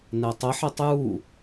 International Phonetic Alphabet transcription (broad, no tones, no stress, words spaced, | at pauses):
nɛtˤəħetˤ ju